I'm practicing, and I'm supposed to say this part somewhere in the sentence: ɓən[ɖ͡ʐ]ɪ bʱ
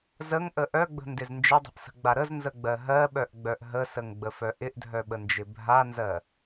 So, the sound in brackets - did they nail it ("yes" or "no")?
no